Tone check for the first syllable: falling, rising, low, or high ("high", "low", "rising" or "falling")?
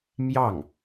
falling